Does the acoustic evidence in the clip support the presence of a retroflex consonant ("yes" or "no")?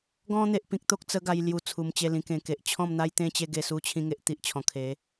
no